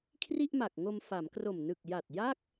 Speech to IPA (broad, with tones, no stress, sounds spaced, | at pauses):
kʰ r i˥˩ ʔ m a˨˩ k̚ ŋ o˧ m f a˩˦ m k r o˨˩ m n ɯ˨˩ k̚ j a˨˩ t̚ j a˥˩ k̚